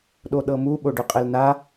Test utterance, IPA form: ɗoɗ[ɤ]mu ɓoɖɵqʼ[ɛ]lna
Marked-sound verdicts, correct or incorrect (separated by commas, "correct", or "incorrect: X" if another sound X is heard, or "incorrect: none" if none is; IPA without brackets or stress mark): correct, correct